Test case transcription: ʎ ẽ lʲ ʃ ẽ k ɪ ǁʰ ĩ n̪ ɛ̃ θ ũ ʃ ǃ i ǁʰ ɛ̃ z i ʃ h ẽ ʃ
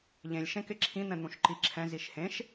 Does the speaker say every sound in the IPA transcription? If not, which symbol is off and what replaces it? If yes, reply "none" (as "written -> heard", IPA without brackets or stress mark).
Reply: θ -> n̪